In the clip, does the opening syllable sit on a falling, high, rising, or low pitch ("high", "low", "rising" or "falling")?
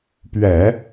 low